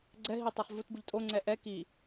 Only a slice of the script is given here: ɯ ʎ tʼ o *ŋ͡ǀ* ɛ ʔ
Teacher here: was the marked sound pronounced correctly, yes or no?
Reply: yes